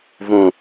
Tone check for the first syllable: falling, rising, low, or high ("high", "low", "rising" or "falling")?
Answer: low